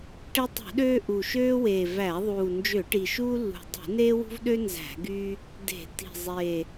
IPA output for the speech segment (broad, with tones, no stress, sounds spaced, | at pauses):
ʈ e˦ tˤ ṳ˧˩˧ ɗ øː˦ ʔ u˨˩ ʃ øː˦ w eː˨˩ v æ˧˩˧ ðˤ uː˨˩ n d͡ʒ ø˧˩˧ ʈ i˨˩ ʃ uː˦ lː ṳ˨˩ dˤ ṳ˧˩˧ n eː˦ w ṳ˦ v ɗ ø˦ n z æ̤˧˩˧ ɡ yː˦ | d e̤˧˩˧ t i̤˨˩ zˤ eː˨˩